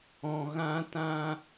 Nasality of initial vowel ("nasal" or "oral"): nasal